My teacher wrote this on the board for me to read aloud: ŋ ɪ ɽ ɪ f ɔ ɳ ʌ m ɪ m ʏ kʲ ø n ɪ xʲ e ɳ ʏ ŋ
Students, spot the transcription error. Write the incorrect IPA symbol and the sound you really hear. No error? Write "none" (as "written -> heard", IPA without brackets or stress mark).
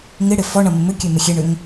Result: n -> m